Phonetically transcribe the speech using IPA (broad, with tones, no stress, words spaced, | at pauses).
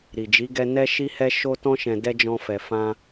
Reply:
ɾi˨d͡ʒi˨˦ɡɛ˧ nɛ˦ʃi˦hɛ˦ ʃo˧tɔ̃˧ʃɛ̃˨ dɛ˧ d͡ʒɔ̃˧fɛ˨ fã˧